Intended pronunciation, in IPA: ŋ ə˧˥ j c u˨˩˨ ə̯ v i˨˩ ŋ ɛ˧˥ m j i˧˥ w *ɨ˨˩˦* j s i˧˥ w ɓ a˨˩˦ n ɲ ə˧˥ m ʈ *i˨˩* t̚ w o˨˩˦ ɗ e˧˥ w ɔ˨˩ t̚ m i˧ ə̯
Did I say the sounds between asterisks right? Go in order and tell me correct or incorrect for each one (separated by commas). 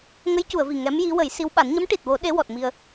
incorrect, correct